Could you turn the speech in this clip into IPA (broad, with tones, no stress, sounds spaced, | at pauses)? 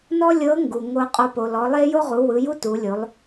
n ɔ˥ lʲ ɤ˧˥ ŋ ɡ u˩ ŋ o˧ qʼ o˧ p o˩ l ɔ˩˧ lˠ e˥ j o˥ ʁ u˩˧ w ɯ˩˧ j u˥ t u˩˧ lʲ o˩˧ lˠ